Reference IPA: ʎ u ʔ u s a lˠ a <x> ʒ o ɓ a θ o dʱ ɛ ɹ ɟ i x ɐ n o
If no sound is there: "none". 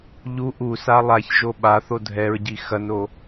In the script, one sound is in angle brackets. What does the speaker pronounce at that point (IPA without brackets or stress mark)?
ç